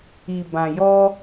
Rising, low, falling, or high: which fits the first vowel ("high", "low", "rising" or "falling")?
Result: low